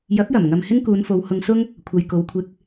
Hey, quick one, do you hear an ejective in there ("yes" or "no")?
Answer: no